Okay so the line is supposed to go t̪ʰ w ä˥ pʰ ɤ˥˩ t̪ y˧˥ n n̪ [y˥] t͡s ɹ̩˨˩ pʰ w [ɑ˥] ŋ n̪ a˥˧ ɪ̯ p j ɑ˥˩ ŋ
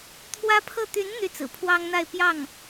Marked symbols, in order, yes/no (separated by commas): no, yes